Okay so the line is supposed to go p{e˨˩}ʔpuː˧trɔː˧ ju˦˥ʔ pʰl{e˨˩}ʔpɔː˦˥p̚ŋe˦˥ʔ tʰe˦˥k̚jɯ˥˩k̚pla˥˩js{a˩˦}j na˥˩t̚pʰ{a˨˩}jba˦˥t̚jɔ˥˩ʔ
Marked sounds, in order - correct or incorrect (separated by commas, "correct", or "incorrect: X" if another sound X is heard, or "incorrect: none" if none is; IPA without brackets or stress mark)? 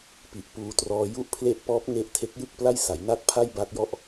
incorrect: i˨˩, incorrect: e˦˥, correct, incorrect: a˥˩